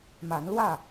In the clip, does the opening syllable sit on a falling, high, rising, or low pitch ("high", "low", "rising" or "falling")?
rising